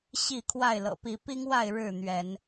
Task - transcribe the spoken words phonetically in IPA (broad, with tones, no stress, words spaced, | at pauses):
ɕi˥˨kʰwa˥˨ɪ̯ lɤ̰˨˩pi˨˦pi˦ŋwa˥˨ɪ̯ ɻɻ̩˥˨n̪ɥɛ˨˦n